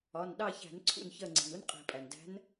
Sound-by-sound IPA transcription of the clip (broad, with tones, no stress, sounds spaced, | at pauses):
ɒ˩˧˩ n ɗ ɑ˦˨ ç æ̤˧˩˧ n ǀʰ ṵ˦˨ n ç ɜ˦˨ ŋ͡ǀ i̤˩ n u˥ n qʼ i̤˧˩˧ pʼ æ˩ n d æ̤˧˥ n